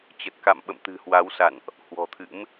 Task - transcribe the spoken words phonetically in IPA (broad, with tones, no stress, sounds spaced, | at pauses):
t͡ɕ ə˨˩ t̚ k a̰˧˨ m ɓ ə̰˧˨ m t̪ ɨ̤˨˩ h w a˨˦ w s a̰˧˨ n ʔ | h w ɔ̤˨˩ t̪ʰ ɨ̰˧˥ m